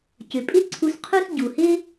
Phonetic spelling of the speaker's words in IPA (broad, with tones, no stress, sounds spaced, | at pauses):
c ʏ˩ pʼ ɪ˥ ǀʰ u˧ s qʰ u˥ s ɟ u˩ h ɪ˥